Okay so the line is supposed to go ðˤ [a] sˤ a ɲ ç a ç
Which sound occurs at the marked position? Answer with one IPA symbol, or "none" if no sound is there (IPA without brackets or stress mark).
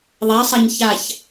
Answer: a